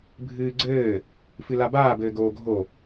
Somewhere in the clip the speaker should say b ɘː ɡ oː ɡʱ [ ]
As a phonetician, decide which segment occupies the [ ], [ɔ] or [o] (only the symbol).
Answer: o